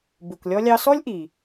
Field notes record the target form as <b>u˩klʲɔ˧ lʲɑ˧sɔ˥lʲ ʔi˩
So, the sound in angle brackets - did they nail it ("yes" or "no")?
yes